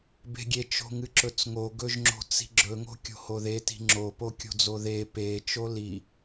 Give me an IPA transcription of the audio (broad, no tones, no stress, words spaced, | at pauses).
be̤ɡʲe t͡ʃo̤ŋɨǁɵt͡sŋo ɡɵʒŋ͡ǁo̤t͡si̤ɡ͡ǁɵ ŋo̤kʲo̤hoðe ti̤ŋ͡ǁo pokʲo̤d͡zoðe pe t͡ʃoli